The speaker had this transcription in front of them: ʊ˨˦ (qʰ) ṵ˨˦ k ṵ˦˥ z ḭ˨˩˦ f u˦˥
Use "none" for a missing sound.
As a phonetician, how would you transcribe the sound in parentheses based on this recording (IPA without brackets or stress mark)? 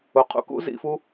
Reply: qʰ